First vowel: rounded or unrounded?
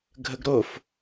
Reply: unrounded